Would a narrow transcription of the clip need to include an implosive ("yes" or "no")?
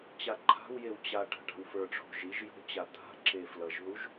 no